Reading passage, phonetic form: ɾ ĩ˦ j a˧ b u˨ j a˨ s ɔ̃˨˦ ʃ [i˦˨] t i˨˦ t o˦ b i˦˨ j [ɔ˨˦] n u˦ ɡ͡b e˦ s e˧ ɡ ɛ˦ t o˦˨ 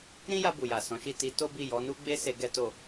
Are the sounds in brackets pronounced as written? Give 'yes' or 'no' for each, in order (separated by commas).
yes, yes